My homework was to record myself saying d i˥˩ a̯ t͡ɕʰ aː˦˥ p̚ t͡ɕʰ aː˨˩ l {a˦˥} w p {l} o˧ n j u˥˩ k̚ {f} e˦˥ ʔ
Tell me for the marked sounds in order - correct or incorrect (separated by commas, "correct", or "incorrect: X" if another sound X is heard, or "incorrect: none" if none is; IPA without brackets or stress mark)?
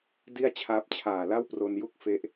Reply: incorrect: a˥˩, incorrect: r, correct